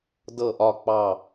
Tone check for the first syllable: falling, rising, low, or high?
falling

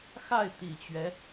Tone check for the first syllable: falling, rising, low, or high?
falling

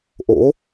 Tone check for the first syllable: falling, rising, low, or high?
rising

